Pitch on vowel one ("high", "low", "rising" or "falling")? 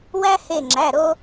high